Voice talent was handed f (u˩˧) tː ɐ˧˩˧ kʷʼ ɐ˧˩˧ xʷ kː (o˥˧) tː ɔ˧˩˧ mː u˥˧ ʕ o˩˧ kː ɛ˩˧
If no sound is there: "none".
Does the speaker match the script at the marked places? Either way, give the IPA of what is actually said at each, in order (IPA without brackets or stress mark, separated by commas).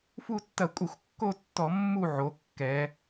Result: u˥˧, o˥˧